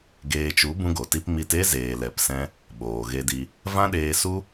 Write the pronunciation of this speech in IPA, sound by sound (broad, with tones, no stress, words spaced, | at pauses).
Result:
ɡeː˧t͡ʃu˨˦ bũ˦ɡo˨ti˦p mi˧te˦zeː˨ lɛ˧psɛ̃˦ | ɓoː˨ɣe˧di˧ | vã˦ɗeː˧su˦